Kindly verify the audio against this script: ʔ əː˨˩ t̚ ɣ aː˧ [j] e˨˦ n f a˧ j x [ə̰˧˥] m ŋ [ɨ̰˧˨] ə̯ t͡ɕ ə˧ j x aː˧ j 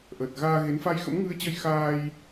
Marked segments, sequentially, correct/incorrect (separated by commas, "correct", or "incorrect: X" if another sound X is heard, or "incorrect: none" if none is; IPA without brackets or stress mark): incorrect: ɣ, correct, incorrect: ɨ˧